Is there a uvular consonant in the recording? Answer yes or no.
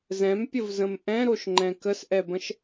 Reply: no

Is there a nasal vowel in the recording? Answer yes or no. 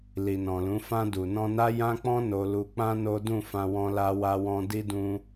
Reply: yes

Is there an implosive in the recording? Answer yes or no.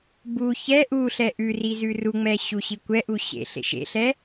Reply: no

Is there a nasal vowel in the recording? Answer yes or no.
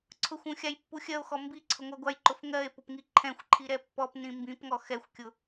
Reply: yes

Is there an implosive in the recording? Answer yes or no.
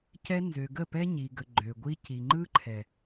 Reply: no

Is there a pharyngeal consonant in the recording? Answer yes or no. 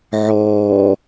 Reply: yes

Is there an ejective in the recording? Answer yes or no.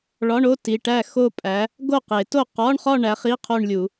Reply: yes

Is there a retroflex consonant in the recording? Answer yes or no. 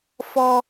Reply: no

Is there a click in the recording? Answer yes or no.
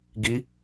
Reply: no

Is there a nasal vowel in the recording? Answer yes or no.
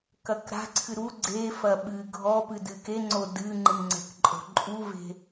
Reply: no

